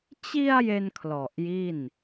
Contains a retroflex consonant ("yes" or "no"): no